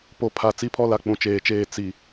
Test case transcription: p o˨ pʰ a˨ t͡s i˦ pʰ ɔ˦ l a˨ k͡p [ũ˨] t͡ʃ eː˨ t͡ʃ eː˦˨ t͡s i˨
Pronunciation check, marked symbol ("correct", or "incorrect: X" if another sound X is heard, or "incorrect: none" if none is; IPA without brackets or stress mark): correct